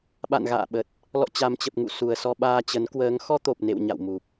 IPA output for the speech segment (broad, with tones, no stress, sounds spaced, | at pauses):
ɓ a̰˧˨ n ɣ a̰ː˧˨ ɓ ə˨˩ t̚ | l ɔ̰˧˨ t͡ɕ a˨˩ m t͡ɕ ə˨˩ p̚ ŋ ṵ˧˨ s u˨˩ ə̯ s ɔ˧ ɓ aː˧ t͡ɕ ə˨˦ n k w əː˨˦ ŋ x ɔ˧ t̪ o˨˩ p̚ n ḛ˧˨ w ɲ a̰˧˨ w m u˨˩ p̚